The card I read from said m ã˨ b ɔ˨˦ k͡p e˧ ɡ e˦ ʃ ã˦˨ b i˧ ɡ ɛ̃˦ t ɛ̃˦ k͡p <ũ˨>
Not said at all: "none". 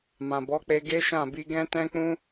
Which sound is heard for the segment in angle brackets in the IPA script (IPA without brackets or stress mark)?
ũ˦